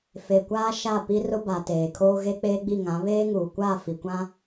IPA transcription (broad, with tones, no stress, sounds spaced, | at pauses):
f e˨ kʷ aː˦ ʃ a˦˨ p i˦ r ʊ˦ b a˨ t eː˨ kʰ oː˦ ɣ e˦ k͡p eː˦ ɡ͡b i˦˨ ŋ ã˨˦ β eː˦ ŋ uː˨ kʷ a˦˨ f i˨ kʷ ã˦